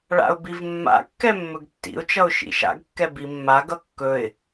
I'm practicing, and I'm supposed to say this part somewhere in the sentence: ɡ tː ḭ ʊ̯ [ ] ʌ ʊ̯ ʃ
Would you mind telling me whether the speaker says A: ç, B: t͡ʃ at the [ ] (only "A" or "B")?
B